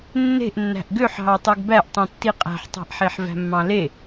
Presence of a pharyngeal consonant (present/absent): present